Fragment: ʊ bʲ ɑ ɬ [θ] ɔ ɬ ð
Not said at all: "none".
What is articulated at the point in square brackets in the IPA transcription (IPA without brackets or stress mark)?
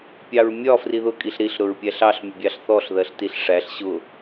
θ